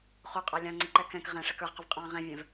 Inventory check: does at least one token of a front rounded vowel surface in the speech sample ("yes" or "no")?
no